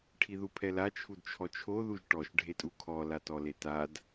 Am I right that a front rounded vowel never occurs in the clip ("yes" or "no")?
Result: yes